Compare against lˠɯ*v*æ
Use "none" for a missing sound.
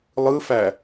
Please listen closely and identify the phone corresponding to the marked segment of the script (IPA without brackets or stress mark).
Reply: f